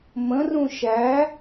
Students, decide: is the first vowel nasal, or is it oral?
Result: nasal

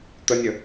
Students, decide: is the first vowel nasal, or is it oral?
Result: oral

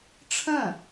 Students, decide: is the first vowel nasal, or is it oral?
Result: nasal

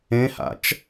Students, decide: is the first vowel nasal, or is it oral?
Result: nasal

